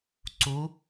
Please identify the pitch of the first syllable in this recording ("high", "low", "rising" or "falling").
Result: rising